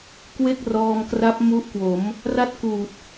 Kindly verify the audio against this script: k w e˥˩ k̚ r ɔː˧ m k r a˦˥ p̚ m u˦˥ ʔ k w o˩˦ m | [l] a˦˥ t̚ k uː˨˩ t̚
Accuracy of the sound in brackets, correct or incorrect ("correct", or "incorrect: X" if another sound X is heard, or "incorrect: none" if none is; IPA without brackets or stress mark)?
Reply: incorrect: r